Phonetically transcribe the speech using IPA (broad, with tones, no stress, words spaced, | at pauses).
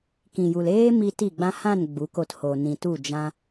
kĩ˨ju˨l eː˦ mi˧ ti˦˨ɡ͡bã˦ hã˦˨n ɡ͡bu˨˦ko˧tho˨ nĩ˨tu˦˨ d͡ʒã˦